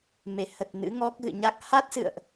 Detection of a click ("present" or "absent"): absent